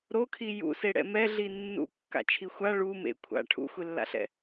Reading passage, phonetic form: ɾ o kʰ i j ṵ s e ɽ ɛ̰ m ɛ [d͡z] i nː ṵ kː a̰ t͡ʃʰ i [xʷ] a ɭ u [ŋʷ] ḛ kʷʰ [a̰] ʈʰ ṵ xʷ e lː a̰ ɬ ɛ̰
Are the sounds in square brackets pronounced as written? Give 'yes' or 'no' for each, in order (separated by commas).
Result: no, yes, no, yes